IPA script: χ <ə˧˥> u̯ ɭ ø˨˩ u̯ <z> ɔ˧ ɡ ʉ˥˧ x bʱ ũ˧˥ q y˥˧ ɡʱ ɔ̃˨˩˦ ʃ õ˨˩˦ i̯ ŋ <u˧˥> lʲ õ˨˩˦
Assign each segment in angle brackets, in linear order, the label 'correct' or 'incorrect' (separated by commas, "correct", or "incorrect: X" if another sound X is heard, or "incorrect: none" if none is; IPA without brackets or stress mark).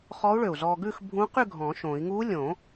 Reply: incorrect: ɔ˧˥, correct, correct